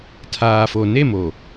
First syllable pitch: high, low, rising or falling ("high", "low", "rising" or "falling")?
low